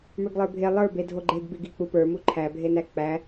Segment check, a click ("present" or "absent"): present